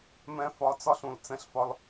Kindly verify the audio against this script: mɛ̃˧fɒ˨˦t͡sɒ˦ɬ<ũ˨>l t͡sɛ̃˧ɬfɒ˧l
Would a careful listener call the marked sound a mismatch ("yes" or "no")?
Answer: no